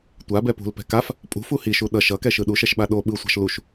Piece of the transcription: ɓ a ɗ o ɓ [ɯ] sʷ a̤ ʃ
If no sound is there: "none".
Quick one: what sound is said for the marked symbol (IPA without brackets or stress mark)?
ɯ